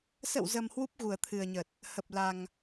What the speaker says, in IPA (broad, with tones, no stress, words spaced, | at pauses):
sə̰˧˨wzə˨˩m hwu˦˥p̚ ɣu˨˩ə̯t̪ʰɨ˨˩ə̯ɲə˨˩t̚ | hə˨˩p̚la˨˩ŋ